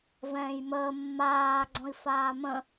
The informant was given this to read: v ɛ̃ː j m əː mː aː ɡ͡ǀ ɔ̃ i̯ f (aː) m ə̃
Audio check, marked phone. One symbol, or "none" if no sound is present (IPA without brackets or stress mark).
aː